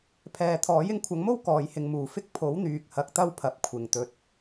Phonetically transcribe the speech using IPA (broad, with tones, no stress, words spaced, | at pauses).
pʰɛː˨t̪ʰɔː˨˥j ɪ˨˥ŋkʷʰɐ˨˥ŋmo˥w kɔː˨˧jhɪ˧ŋmuː˨ fɪ˥k̚ pʰo˨˥wn̪yː˨k̚ hɐ˧k̚t̪ɐ˥wpʰɐ˨p̚ kʷʰɪ˨˩ŋt̪ɵ˨t̚